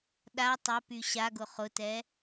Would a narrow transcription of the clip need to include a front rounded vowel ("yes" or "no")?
yes